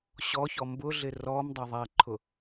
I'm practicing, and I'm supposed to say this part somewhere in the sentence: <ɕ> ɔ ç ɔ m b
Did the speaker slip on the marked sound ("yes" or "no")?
no